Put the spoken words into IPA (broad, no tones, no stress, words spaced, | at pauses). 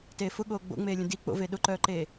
teːfʊɠoː ɡ͡bo̰ŋ͡meːlʲə̃ di k͡po̰ve ɗʊǃœːǃeː